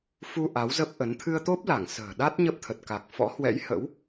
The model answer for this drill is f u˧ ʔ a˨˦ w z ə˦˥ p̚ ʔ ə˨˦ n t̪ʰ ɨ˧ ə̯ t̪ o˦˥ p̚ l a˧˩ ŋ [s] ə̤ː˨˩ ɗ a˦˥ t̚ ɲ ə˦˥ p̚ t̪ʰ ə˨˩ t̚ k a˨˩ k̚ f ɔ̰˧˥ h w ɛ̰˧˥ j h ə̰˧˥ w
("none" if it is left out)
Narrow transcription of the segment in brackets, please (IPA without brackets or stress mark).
s